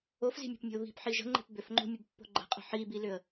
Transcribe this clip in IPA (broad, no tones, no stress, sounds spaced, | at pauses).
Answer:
o f z i̤ mʲ o̤ p mʲ ə̤ ʊ̯ β i̤ p ħ i ʒ ə̤ ŋ͡ǃ e̤ p b ʏ f ŋ͡ǃ o̤ mʲ ə b pː o̤ ɡ͡ǃ ə̤ qʼ ə̤ ħ i b i l ʏ ə̯